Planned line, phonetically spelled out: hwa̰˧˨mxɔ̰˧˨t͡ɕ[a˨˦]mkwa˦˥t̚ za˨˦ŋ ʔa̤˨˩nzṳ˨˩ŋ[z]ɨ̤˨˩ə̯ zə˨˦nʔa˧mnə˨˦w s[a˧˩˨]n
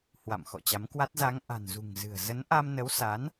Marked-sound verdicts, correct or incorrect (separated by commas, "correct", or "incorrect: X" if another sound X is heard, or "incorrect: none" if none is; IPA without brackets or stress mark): correct, correct, incorrect: a˨˦